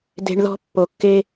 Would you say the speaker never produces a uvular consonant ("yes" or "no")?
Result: yes